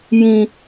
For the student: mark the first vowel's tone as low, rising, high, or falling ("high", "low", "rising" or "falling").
low